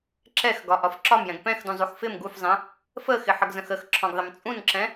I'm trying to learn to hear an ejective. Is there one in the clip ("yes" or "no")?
yes